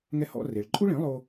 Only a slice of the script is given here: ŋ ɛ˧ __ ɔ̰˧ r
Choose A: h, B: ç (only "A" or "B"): A